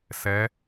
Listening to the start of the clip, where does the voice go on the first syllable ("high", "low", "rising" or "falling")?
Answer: rising